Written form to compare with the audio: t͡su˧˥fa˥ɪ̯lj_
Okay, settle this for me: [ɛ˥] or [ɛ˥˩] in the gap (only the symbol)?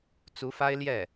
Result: ɛ˥˩